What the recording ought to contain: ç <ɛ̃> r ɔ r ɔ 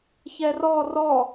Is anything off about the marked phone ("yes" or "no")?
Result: yes